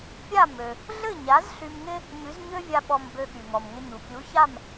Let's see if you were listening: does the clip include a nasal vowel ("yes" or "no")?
no